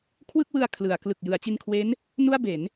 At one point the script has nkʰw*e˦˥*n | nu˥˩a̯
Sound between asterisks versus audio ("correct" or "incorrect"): correct